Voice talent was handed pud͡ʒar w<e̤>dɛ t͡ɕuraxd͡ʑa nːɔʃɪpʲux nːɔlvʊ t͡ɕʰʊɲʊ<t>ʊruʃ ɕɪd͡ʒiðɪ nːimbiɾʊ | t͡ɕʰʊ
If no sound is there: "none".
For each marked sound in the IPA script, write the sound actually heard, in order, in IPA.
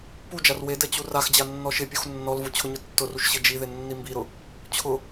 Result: e, tː

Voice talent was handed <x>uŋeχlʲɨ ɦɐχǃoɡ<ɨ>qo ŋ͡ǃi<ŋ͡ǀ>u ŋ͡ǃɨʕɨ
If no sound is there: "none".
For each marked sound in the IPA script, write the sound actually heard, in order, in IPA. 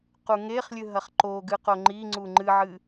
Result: q, ɨ, ŋ͡ǀ

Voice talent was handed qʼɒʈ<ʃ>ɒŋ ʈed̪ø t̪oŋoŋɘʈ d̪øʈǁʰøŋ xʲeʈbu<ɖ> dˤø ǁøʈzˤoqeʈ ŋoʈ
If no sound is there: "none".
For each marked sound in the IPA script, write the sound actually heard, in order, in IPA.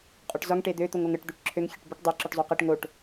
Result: z, ʈ

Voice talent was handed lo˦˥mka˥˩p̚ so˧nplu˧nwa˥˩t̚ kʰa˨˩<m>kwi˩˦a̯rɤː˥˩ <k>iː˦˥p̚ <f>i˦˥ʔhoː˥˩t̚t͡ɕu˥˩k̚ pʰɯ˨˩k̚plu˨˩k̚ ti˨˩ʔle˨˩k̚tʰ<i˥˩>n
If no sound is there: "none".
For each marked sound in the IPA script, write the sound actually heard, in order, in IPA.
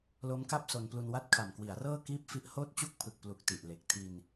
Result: m, k, f, i˧

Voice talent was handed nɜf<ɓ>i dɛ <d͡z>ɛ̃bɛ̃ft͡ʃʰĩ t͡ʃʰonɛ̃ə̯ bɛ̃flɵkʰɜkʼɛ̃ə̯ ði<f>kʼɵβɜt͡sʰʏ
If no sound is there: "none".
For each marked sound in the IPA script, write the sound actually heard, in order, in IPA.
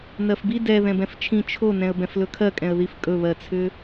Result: b, ð, f

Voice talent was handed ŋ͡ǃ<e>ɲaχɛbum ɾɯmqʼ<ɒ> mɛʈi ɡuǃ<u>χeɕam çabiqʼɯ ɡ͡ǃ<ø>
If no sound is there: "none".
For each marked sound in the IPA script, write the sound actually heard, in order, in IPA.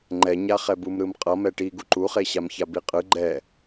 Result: ɛ, ʌ, u, ɛ

